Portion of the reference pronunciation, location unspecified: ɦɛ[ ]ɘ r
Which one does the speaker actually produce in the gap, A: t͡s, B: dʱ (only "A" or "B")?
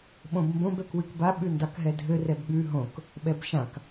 B